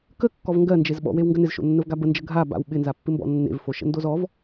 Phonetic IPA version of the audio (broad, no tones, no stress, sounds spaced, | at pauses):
k ə kː ɔ v ŋ ɡ ɜ n d͡ʒ e z ɓ ɔ̰ w e w ŋ ɡ ə n ɪ z ʃ o̰ nː ə v ɡ a b ə n d͡ʒ ə ɡʱ a b a̰ w ɓ ɪ n z a pː ɪ m b ɔ̰ nː ḛ v f o ʃ ə̰ n d o z ɔ v